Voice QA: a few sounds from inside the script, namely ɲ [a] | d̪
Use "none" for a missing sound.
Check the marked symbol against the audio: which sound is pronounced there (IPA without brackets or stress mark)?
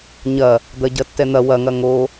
ɐ